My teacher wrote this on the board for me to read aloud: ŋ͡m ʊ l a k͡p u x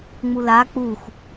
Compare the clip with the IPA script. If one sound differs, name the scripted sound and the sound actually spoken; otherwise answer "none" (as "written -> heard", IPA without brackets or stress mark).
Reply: ʊ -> u